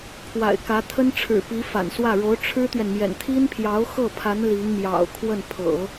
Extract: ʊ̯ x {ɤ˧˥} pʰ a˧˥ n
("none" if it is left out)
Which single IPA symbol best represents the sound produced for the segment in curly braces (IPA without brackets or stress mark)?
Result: ɤ˥˩